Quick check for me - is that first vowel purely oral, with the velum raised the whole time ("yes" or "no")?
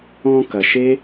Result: no